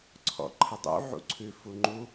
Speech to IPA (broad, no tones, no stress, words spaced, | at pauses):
ǀʰɔ̰ǃʰədˤṵ ʕṵǀʰʉ fuŋ͡ǃu